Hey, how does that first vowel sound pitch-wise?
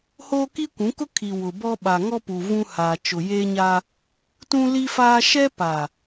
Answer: high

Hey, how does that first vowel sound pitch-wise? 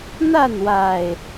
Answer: falling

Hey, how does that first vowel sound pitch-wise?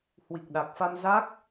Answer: low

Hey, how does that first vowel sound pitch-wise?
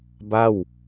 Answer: falling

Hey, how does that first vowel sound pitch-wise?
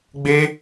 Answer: high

